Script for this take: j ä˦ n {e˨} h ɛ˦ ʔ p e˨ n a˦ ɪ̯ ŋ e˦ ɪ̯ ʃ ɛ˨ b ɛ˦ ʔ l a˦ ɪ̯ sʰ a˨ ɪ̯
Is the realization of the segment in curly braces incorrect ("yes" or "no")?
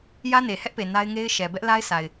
no